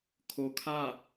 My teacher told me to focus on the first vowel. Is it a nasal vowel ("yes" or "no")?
no